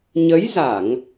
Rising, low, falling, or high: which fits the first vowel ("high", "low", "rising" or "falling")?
rising